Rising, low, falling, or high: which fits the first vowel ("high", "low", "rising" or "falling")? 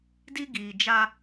high